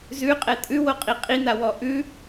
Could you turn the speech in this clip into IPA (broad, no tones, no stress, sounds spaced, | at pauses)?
z ʉ qʼ ɛ tʼ ʉ w o qʼ i qʼ i n a w ɔ ʔ ʉ